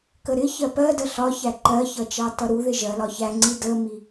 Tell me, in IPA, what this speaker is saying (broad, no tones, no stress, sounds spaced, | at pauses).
k ə ɾ ɪ ç ɜ p ɜ d ə ɬ ɒ ç æ ǃ ɜ ç ʌ t͡ʃ ɑ t ʌ ɾ u ð ɪ ʒ ɜ l ɒ ç æ ŋ͡ǀ i d ə m i